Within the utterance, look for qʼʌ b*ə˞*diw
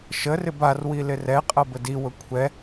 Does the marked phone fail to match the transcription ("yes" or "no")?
yes